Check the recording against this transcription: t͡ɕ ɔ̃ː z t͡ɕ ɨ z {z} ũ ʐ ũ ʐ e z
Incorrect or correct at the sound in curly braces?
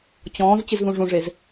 incorrect: ð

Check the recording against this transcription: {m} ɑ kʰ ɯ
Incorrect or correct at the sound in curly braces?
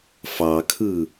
incorrect: f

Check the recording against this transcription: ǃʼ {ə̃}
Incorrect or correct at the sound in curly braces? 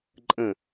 correct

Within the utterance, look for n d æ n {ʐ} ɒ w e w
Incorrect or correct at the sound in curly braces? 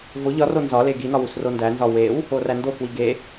incorrect: z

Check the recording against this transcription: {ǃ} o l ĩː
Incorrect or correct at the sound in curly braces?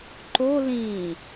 correct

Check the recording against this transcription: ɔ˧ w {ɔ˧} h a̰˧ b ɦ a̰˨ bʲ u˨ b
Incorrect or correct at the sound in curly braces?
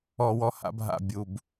correct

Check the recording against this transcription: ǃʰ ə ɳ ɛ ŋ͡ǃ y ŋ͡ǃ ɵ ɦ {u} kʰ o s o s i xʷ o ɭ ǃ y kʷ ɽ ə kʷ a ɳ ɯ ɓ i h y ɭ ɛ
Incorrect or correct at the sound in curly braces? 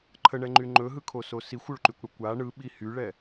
incorrect: ɯ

